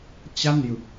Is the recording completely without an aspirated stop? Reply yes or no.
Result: yes